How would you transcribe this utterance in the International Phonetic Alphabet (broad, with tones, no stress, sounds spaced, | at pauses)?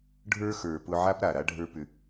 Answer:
ɖʱ ə˞˦ x ə˞˨ p ʊ˧ ʕ a˦ p ɾ a˨ ɾ a˦ ɖʱ ə˞˦ p ʏ˧